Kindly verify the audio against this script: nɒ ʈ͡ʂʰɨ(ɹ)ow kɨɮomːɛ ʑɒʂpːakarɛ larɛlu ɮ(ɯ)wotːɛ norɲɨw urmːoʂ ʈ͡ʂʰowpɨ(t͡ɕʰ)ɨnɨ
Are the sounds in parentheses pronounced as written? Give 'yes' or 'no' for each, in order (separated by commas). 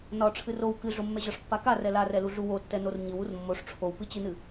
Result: no, no, no